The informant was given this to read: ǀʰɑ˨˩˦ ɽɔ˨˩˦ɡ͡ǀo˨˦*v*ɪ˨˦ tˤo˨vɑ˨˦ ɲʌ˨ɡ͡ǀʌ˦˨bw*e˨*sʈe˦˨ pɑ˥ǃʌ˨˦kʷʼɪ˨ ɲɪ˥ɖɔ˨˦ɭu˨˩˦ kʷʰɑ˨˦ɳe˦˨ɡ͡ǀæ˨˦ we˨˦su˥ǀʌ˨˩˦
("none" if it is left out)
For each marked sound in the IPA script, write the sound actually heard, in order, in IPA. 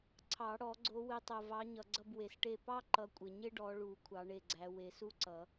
w, e˨

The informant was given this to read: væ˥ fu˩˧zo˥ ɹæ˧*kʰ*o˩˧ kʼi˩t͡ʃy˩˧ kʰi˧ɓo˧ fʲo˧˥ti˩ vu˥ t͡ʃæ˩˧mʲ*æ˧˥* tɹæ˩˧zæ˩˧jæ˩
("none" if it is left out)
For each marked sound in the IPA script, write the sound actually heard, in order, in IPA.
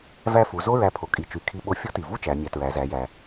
pʰ, æ˩˧

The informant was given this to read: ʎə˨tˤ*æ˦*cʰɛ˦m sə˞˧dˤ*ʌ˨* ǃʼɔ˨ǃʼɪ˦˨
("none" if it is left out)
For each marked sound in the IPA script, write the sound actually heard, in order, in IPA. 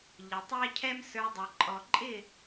æ˦, ʌ˨

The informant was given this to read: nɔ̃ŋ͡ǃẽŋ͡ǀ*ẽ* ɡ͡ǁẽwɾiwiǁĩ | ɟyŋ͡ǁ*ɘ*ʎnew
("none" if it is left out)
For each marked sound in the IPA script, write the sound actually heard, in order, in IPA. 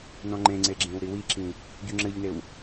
e, ɘ

